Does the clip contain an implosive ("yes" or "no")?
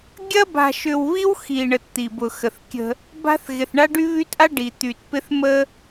no